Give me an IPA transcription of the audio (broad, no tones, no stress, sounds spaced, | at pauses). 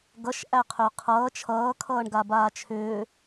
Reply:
ɡ ʌ ʃ ʔ æ qʰ ʏː qʰ ʌː t͡ʃʰ ʌː kʰ ʌː ɳ ɡ a b aː t͡ʃʰ ʏː